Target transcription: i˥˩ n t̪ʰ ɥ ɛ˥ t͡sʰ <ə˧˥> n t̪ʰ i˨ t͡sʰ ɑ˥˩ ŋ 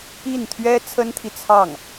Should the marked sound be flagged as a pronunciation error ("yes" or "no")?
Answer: yes